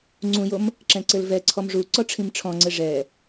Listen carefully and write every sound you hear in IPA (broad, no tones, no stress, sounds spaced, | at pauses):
ŋ͡ǀ ũ j o m | ǁ ɛ̃ ǀ ɘ l v ɛ ǀʰ ɔ m ʐ u ǀ ɔ ʈ͡ʂʰ ĩ m ʈ͡ʂʰ ɔ̃ ŋ͡ǀ ɘ ʐ ɛ